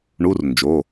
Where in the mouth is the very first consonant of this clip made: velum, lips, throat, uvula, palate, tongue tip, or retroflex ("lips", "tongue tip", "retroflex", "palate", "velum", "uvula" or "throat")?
retroflex